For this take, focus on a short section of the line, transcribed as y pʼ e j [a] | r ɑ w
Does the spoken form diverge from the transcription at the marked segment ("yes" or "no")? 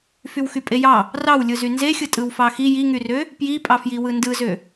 yes